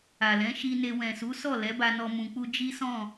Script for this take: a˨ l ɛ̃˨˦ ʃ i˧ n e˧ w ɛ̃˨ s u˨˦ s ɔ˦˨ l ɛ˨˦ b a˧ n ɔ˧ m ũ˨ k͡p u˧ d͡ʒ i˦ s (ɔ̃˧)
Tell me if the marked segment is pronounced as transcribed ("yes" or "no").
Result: no